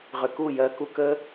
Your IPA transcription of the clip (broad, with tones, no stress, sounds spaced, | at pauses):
ʁ ʏ˨ k u˦˨ j ɜ˧ k u˧ k əː˦